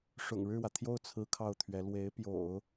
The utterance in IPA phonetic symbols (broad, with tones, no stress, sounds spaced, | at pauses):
ʂ ʊ̰˨˩ ŋ ɻ ɻ̩˥˩ w ä˩ t̪ʰ j o˥˩ ʊ̯ t͡sʰ ɹ̩˥ kʰ ɑ˥˩ ʊ̯ t̪ʰ ɥ ɛ˧˥ l w e˧˥ ɪ̯ p j o̰˨˩˦ ʊ̯